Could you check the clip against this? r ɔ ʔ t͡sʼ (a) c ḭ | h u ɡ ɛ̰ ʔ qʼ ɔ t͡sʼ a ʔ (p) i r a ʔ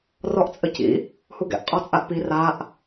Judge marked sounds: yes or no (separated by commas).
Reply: no, yes